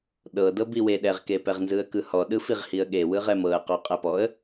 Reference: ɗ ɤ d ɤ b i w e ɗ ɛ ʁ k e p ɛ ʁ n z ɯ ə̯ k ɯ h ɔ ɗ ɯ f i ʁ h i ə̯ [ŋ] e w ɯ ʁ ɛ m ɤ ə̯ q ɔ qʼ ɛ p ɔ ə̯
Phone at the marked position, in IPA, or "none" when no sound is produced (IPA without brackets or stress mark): ɠ